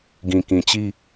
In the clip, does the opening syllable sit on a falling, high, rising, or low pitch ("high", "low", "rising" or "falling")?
low